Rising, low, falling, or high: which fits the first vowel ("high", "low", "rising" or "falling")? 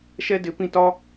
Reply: high